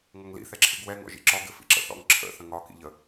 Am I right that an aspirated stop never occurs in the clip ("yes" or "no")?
no